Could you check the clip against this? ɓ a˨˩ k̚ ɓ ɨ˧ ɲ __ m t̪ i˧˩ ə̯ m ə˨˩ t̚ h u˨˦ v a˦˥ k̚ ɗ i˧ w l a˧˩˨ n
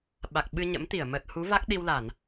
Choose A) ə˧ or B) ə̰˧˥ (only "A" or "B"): B